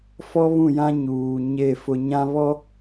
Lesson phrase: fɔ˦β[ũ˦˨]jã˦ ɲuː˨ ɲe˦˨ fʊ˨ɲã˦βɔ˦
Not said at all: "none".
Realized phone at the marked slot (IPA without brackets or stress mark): ũ˦˨